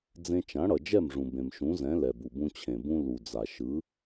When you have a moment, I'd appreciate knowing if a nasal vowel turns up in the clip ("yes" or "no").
yes